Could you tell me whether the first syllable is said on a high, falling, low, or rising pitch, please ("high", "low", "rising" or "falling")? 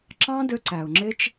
high